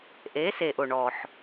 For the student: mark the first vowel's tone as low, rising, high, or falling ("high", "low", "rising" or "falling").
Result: rising